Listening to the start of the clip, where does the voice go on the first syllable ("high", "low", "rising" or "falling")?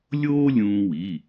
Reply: high